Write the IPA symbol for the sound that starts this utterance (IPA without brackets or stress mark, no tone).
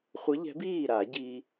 χʷ